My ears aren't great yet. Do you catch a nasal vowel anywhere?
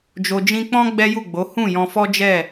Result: yes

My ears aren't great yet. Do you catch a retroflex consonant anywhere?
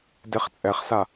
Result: no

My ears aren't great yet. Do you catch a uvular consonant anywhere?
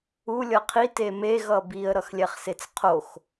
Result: yes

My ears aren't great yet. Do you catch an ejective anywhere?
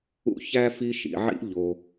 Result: no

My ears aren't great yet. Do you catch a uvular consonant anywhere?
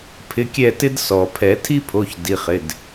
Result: yes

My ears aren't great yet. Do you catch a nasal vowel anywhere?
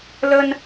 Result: no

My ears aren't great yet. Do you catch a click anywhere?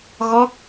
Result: no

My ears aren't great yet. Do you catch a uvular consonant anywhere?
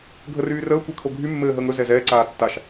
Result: no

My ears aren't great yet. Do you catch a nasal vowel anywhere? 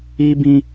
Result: yes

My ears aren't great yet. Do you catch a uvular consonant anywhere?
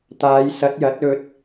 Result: no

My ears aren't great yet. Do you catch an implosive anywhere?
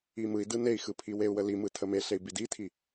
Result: no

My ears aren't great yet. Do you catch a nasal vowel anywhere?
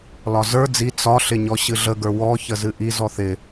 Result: no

